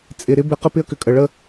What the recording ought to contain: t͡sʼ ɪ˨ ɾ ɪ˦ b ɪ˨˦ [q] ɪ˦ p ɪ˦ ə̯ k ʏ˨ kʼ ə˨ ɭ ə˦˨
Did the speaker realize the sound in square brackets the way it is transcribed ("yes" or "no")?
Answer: yes